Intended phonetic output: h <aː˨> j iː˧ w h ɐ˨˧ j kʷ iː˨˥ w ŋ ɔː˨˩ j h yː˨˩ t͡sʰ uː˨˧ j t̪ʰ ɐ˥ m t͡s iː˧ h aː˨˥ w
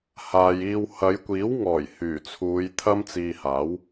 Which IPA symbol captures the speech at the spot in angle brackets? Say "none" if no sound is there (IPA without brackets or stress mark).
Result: aː˨